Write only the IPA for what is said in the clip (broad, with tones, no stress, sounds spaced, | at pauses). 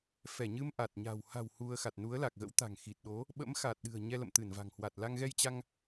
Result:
f ɛ˧˩ ɲ ɨ˧ m ʔ a˨˩ t̚ ɲ a̤˨˩ w h a̤˨˩ w h u˧ ə̯ x a˨˩ t̚ n u˨˦ ə̯ l a˨˩ k̚ ɣ ə̰˧˥ w t̪ a̤˨˩ ŋ x i˨˩ t̚ ɗ o˨˦ | ɓ ə̰˧˥ m x a˨˩ t̚ ɗ ɨ̤˨˩ ə̯ ɲ ɛ˧ l ə̰˧˨ m t̪ ɨ˧˩ n v a̤˨˩ ŋ h w a˨˩ t̚ l a˧ ŋ ɣ ɛ˧ j t͡ɕ a˧ ŋ